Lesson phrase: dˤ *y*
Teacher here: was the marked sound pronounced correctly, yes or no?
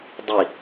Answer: no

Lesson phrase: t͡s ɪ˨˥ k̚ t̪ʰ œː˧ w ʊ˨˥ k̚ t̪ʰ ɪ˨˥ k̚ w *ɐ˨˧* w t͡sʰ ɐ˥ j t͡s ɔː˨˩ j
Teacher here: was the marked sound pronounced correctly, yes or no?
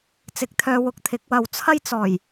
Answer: no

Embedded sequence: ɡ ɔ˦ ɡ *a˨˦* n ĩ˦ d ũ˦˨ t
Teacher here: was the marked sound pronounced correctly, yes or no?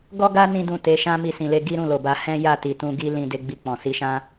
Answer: no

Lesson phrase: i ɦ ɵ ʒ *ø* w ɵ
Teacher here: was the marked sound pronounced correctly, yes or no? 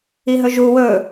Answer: no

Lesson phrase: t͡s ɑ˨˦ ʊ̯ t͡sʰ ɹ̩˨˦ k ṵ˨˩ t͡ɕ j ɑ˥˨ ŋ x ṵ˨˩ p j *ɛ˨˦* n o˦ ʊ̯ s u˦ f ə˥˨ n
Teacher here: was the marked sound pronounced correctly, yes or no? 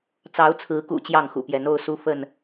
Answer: yes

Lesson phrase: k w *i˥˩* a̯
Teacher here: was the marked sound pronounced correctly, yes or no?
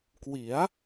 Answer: no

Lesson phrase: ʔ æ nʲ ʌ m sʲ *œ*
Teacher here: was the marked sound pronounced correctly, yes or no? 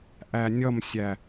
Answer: no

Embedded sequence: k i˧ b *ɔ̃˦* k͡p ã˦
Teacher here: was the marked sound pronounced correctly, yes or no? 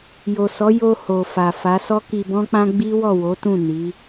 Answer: yes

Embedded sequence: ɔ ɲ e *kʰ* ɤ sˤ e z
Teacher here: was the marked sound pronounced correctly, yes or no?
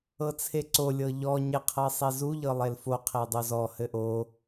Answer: no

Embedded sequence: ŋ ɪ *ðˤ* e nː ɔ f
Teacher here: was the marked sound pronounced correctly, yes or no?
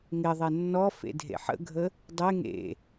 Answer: yes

